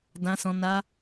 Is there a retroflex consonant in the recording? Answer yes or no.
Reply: no